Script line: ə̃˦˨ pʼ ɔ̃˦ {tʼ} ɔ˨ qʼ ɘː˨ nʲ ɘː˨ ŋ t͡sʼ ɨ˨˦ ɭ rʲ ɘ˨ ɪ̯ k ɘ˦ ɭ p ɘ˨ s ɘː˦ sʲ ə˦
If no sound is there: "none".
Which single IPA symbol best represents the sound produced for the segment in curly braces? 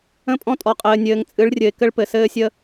tʼ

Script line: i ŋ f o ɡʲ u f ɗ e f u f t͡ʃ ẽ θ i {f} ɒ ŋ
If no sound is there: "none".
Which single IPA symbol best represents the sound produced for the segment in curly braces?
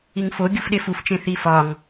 f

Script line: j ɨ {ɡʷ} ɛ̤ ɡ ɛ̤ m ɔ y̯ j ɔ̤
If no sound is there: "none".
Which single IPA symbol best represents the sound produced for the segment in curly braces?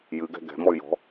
ɡ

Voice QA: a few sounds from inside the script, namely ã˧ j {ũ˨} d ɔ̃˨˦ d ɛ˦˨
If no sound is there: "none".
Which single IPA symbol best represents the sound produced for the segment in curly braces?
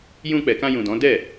ũ˨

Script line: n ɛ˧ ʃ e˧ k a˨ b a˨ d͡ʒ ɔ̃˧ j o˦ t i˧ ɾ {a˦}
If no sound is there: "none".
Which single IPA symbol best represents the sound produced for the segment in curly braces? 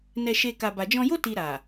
a˨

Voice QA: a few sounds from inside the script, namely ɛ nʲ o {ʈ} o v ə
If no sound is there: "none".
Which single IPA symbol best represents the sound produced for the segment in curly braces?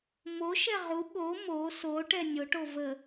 ʈ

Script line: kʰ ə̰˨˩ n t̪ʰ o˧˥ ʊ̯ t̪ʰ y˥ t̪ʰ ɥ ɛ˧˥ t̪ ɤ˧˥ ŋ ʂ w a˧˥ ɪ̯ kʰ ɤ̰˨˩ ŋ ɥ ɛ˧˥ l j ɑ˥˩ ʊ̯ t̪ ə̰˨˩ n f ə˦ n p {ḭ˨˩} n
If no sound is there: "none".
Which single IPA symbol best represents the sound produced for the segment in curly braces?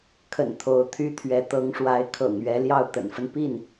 i˥˩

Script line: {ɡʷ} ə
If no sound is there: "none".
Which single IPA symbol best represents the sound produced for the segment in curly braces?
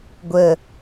ɡʷ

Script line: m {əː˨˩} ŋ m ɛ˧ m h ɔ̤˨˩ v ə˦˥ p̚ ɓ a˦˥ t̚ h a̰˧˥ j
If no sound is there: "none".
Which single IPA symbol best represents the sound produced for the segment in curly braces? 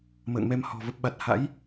ə̰ː˧˨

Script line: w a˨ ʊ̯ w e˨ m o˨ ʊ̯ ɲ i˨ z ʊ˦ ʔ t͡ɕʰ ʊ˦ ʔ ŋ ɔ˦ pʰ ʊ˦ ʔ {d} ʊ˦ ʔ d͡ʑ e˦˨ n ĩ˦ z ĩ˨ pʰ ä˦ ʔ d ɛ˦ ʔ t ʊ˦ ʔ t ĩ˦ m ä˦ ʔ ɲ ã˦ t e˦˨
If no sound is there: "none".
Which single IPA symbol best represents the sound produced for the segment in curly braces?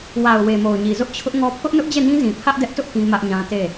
n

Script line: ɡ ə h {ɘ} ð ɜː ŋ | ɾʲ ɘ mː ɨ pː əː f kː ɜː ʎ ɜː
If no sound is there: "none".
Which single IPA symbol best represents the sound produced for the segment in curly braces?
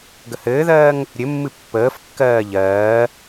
ɘː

